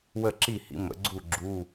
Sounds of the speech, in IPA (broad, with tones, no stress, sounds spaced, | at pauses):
w ə˥˩ ǁ i˥˩ h ḭ˩˥ m ə̰˩˥ ɡ͡ǀ u˥˩ ɡ͡ǁ u˧˥˧